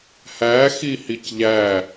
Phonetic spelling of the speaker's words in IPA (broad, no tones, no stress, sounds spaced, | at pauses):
h æ x i h i c ʎ æ